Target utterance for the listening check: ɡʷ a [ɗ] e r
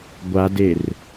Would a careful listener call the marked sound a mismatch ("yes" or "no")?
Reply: yes